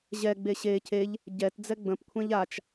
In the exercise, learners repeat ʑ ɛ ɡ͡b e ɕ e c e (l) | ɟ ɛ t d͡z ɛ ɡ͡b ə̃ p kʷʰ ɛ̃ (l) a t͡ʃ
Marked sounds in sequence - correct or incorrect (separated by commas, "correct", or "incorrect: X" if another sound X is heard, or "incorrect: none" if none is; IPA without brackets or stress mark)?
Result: incorrect: ʎ, incorrect: ʎ